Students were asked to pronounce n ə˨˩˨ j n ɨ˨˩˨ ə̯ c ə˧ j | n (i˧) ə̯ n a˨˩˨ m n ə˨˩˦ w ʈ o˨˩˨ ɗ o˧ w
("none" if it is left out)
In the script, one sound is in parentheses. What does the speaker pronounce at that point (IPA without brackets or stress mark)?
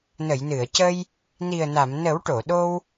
i˨˩